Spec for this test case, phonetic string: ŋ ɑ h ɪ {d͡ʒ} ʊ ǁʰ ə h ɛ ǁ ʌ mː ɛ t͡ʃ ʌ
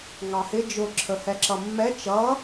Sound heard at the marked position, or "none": d͡ʒ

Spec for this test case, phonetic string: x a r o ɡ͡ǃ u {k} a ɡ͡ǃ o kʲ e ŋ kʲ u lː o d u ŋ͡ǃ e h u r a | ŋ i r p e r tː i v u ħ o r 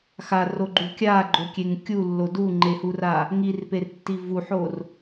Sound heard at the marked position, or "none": kʲ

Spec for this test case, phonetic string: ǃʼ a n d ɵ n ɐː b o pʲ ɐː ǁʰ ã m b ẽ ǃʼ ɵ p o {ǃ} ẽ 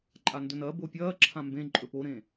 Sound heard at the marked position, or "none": ɾ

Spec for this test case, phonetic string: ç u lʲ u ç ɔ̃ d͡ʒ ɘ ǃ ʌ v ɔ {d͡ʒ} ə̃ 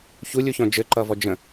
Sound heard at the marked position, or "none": d͡ʒ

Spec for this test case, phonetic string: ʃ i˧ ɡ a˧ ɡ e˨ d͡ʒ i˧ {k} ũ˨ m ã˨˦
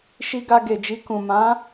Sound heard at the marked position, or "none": k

